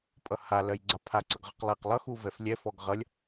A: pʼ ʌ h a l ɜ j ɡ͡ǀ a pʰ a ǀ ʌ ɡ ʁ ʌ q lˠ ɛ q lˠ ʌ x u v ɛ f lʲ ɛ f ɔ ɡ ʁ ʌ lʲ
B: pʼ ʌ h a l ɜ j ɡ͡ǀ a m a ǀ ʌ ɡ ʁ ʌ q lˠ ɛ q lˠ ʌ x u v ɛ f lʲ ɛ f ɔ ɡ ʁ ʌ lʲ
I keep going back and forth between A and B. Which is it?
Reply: A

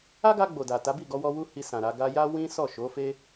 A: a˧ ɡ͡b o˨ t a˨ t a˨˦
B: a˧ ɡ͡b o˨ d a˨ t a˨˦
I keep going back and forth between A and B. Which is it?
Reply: B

